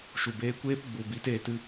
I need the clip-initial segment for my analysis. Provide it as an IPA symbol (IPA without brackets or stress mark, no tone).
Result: ʃ